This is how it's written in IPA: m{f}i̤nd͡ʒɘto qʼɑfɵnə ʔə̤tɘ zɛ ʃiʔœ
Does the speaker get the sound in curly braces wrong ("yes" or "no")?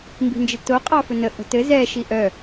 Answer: yes